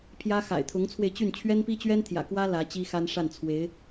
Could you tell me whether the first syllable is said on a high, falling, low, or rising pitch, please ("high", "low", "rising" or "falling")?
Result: high